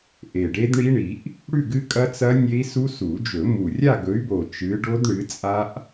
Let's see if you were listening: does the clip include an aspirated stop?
no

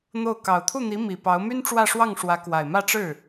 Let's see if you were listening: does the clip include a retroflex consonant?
yes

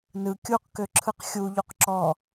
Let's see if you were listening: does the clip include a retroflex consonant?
no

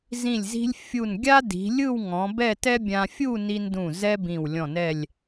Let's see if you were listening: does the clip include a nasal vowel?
yes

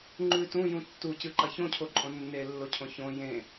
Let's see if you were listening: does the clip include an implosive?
no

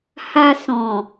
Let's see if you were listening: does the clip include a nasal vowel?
yes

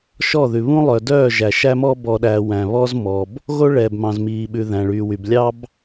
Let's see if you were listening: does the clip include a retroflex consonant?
yes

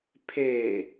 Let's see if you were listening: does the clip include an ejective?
no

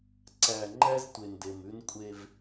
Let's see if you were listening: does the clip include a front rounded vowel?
no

